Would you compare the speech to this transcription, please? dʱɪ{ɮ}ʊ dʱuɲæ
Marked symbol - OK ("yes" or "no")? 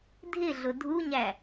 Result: yes